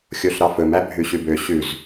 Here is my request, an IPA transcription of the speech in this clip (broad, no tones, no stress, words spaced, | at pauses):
xʲoɬɾɑfɵm æbʱʉɕʉbø ɕʉz